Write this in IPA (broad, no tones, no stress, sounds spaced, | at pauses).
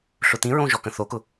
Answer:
ɬ ʊ t̪ ĩ ɹ õ ʒ ɔ k ə̃ θ o k ʊ